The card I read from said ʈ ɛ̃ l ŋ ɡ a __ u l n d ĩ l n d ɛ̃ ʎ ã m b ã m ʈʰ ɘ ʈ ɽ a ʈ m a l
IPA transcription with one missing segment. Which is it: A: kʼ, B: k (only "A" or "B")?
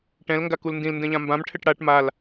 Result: B